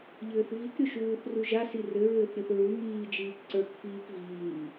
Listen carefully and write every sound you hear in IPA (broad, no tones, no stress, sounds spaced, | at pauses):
ʎ ɘː θ v i k ɾʲ o ʃ uː θ r u ʒ a s i r ɘ ɹ ɘː θ ɾʲ o θ ɹ u ŋ iː d͡ʒ iː k ǀ ə˞ k f iː k v iː